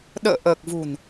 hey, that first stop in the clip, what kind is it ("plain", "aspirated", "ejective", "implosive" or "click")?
implosive